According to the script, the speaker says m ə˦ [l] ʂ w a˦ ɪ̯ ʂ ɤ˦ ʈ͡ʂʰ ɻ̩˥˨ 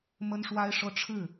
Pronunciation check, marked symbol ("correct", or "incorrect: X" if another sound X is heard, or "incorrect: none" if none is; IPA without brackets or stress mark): incorrect: n